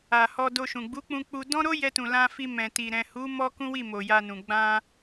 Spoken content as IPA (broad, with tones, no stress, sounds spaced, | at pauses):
a˨ h ɔ˧ d o˧ ʃ ũ˨ ɡ͡b u˨˦ k͡p ũ˧ k͡p u˧ d ɔ̃˦ ɾ o˦ j ɛ˧ t ũ˨ l ã˧ f i˧ m ɛ̃˨ t i˨ ɾ ɛ̃˨ h u˨˦ m ɔ˦ k ũ˦ w i˦˨ m o˨ j a˧ n ũ˨ ɡ͡b ã˧